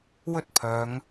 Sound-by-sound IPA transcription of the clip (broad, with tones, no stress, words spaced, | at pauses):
wɵ˥t̚pʰœː˨˧ŋ